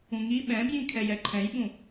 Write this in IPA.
ũŋi ɓɛ̃bjĩkʰɛj ɛǃʰɛ̃jɓũ

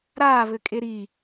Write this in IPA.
ɾaːβɘkʼe ɾi

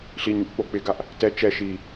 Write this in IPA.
ɬiɲuʔ k͡pok͡pɪɡaʔ | tɛ t͡ʃɛ ʃi

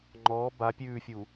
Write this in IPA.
ŋ͡ǃɔː ba pʲʉːfʲu

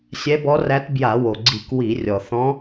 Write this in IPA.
sʲɛ˧˥bɔ˧˥ræ˧˥t bja˧˩˧wo˩ɡ͡ǀi˧˩˧k wi˧˩˧rʲɔ˩ θɔ̃˧˥

